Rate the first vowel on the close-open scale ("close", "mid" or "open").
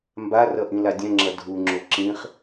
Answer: open